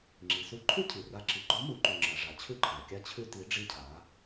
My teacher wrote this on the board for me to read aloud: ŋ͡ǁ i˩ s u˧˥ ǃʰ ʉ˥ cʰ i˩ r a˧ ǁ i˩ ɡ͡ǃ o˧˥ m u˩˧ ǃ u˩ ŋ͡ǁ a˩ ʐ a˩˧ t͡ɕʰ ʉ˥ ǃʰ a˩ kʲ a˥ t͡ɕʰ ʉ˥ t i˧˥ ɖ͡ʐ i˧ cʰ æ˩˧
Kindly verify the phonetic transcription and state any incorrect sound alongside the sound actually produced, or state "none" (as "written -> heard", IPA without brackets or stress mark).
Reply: æ˩˧ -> a˩˧